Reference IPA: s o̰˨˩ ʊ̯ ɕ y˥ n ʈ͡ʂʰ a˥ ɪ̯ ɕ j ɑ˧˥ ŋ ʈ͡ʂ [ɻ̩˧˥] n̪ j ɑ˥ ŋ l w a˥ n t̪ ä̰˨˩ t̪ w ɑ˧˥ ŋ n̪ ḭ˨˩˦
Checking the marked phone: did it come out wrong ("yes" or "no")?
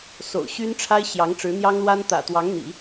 no